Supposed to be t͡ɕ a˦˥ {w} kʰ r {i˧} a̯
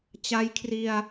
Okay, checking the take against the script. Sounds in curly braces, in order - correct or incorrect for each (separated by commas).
incorrect, correct